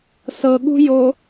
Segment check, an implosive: present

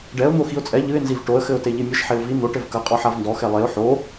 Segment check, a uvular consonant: present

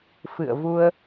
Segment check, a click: absent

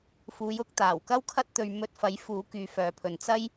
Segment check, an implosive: absent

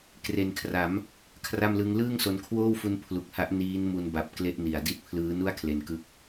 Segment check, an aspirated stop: present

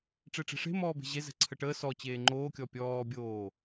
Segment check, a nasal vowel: absent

